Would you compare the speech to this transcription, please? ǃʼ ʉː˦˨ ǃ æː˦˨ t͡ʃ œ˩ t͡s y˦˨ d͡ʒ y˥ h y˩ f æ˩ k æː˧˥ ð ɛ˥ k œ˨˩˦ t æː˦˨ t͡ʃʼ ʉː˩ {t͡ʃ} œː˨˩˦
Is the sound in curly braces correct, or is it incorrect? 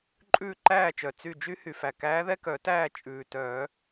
incorrect